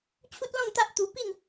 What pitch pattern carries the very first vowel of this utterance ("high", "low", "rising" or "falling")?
high